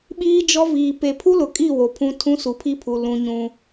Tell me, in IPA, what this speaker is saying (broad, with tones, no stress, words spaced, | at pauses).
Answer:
ɓiː˦d͡ʒɔ˦viː˨ pe˨pʰu˦lʊ˨kʼi˦˨ wo˨pʰũ˦tʰũ˦ su˨pʰi˦pʰu˨ lũ˦ɲũ˦